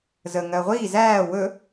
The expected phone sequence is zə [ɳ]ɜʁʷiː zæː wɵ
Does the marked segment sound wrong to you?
yes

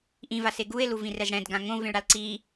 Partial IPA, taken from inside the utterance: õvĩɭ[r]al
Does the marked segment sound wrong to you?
yes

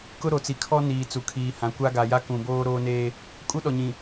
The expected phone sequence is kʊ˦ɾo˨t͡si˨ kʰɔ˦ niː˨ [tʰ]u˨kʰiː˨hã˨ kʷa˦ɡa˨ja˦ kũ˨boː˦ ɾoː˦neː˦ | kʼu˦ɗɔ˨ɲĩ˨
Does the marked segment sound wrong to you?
yes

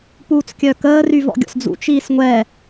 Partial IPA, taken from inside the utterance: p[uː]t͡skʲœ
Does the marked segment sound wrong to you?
no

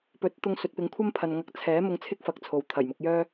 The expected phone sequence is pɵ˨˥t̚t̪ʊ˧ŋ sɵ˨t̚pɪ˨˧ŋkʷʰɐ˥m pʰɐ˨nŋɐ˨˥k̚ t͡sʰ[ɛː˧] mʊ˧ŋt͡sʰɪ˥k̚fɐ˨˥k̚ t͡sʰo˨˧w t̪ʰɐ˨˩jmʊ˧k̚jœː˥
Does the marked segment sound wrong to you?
yes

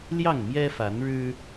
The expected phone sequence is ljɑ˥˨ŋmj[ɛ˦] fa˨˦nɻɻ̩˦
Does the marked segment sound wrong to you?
no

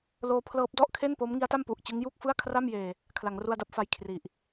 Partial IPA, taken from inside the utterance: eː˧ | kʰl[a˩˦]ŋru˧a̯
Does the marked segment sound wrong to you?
no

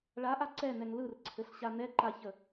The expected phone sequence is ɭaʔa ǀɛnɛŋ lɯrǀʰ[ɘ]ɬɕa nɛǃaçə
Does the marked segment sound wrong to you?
no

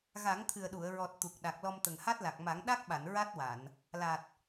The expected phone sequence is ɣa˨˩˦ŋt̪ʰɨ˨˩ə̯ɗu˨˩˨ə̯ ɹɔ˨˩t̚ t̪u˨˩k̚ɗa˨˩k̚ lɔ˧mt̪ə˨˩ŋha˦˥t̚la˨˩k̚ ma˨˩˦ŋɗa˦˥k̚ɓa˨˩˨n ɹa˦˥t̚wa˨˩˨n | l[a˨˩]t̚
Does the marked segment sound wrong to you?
no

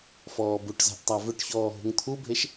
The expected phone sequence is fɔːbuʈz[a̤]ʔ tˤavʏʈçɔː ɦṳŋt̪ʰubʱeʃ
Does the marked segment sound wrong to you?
no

